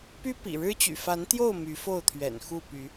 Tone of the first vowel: high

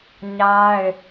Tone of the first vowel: high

